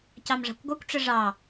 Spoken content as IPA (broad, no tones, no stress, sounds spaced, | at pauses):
c ɑ m ʐ ɑ̤ kʷ ɡʷ ə kʷ ʈ͡ʂ ə ʐ ɑ